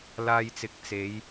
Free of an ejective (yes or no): yes